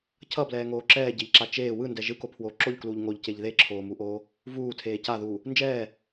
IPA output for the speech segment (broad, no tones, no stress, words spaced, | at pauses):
cʰʌblɛːŋoː ǁɛːɟeʎǁa t͡ʃeː wɯndɛ ʒɯkopʰwoː ǁoʎkluːʎ ŋoʎceʎ ðeǁʰoːmuʔoː | vuːtʰeː caðuː | nd͡ʒɛː